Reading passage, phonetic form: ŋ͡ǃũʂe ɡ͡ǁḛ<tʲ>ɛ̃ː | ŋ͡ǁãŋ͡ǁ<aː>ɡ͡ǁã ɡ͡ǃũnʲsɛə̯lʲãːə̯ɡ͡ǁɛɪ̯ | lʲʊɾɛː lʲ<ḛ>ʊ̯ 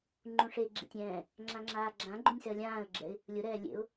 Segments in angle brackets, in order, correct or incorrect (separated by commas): correct, correct, correct